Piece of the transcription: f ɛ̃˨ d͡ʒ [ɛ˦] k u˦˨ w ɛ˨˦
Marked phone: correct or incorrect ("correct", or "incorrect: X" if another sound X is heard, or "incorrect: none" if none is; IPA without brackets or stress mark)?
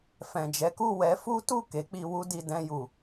incorrect: ɛ˨˦